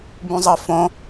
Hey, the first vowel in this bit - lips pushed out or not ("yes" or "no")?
yes